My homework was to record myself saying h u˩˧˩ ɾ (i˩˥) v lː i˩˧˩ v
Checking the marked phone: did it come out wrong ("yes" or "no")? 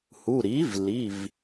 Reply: no